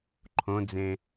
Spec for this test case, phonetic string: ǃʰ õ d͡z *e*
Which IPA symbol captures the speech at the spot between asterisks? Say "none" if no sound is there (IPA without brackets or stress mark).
ẽ